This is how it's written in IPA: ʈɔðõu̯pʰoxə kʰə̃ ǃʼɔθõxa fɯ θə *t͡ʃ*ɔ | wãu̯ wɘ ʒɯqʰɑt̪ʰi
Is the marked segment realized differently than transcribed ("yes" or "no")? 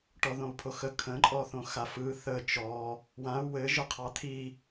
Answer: no